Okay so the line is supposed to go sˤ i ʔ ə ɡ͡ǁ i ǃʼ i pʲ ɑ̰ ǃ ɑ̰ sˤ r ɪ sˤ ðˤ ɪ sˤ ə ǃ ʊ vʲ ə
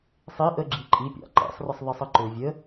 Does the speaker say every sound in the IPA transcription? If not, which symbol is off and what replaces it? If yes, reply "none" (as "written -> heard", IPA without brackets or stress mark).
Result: none